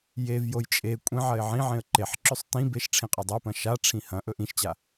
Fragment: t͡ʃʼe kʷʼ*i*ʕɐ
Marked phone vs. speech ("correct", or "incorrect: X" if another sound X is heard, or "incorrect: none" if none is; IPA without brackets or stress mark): incorrect: ĩ